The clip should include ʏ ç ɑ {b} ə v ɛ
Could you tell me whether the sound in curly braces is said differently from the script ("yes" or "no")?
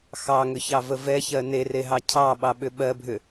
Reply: yes